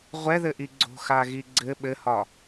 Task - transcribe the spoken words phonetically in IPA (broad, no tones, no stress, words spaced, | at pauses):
ʁʷɛðɘʔi ɡ͡ǀo̤xaɣi ɡ͡ǀɘ ɓɘhɒ